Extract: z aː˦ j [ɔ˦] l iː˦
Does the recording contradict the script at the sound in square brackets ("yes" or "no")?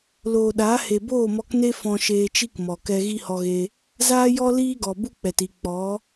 no